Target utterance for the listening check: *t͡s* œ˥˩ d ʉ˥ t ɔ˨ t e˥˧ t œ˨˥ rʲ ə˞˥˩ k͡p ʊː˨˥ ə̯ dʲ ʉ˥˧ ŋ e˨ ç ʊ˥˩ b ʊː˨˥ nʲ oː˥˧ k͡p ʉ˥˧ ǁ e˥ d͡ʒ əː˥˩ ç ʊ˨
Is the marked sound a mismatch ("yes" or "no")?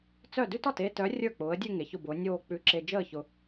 no